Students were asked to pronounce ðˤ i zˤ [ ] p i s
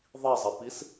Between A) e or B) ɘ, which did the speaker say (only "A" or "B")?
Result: B